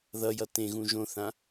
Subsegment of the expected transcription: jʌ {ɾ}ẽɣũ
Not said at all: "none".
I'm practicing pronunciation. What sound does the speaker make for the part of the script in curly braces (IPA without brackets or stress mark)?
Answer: t